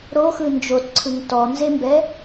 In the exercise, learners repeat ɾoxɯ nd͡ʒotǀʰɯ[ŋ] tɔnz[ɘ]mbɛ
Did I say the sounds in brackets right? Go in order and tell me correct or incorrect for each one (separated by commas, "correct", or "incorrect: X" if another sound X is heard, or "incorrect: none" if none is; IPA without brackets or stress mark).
correct, incorrect: e